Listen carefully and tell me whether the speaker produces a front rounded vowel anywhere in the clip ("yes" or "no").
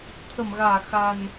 no